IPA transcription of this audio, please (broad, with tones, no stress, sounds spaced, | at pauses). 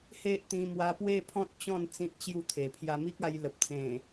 h e˦ ʔ t̪ ĩ˧ m w a˧ p w e˥˧ pʰ ɔ̃˦ t̚ t͡ɕ ɔ̃˥˧ n t͡s ĩ˦ t̚ t͡ɕ j u˥˧ t̪ʰ e˨˩ pʰ j a˧ m i˦ k̚ a˧ j l ə˨ p̚ t͡s ẽ˨˩